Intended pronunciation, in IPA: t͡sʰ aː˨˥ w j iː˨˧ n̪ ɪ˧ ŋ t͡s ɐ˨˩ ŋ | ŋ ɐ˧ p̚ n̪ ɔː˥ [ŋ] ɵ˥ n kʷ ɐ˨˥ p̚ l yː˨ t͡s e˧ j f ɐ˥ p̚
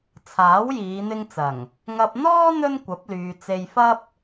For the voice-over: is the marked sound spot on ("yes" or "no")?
no